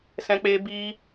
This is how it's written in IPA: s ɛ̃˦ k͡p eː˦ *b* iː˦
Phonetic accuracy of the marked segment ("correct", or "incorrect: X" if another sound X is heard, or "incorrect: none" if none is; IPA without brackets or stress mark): correct